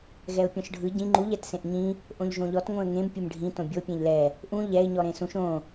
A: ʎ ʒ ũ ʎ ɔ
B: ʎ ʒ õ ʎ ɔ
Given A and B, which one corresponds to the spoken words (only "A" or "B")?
B